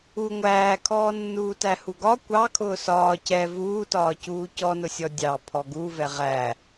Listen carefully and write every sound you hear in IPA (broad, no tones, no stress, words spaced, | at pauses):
u ŋʷæːkʰɔːnːuːtæ huɡɒ kʷɑ kʰʊːsɒː cɛ vuːtɒːcuː cɔnʊsʲɔ dʲɑ pʰɔɡuvɛ ʁæ